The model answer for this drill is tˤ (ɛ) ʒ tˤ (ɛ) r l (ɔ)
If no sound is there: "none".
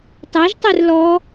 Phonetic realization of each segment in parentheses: ɛ, ɛ, ɔ

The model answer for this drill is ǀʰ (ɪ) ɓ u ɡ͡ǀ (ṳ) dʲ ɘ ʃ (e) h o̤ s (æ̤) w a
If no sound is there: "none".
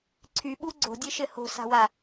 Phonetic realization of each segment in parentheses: y, o̤, ɘ, a̤

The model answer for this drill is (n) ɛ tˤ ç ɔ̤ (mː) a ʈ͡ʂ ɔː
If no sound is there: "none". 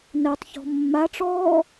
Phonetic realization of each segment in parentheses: n, mː

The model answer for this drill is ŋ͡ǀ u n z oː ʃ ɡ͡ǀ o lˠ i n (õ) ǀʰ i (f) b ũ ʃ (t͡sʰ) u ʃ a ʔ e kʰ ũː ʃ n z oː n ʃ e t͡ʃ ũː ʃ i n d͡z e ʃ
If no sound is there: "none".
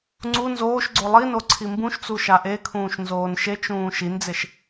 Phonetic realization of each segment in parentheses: o, m, t͡s

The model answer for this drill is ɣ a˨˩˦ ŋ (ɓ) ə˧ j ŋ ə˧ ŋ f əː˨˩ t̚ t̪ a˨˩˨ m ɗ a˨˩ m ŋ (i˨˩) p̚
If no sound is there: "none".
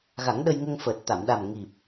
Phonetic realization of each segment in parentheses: ɗ, i˨˩

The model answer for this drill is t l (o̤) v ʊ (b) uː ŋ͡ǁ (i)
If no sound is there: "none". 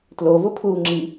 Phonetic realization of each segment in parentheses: o, pʰ, i

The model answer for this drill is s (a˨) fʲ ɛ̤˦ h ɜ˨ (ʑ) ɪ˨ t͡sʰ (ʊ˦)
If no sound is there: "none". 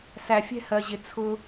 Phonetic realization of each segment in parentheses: æ˨, ʑ, ʊ˦

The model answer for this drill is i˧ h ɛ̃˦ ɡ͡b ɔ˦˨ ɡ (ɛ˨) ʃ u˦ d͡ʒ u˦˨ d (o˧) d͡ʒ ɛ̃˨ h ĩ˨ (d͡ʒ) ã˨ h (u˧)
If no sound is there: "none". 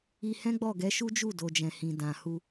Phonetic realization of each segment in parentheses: ɛ˨˦, o˨, d, u˧

